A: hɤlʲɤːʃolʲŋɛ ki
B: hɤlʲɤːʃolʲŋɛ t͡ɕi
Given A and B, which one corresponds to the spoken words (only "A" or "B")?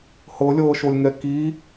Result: A